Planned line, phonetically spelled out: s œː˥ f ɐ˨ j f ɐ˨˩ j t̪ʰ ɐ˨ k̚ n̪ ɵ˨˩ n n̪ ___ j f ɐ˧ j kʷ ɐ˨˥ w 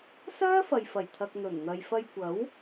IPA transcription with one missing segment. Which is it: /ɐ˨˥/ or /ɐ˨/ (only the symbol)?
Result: ɐ˨